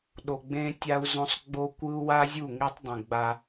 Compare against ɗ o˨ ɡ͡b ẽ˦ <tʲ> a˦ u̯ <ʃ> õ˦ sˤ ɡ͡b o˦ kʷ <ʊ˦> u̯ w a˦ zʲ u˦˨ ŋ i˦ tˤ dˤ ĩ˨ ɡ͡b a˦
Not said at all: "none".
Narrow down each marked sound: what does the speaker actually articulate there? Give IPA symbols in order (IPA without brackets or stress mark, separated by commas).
tʲ, z, ɯ˦